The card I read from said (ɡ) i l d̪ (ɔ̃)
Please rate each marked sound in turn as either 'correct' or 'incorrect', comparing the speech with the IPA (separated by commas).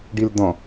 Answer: incorrect, correct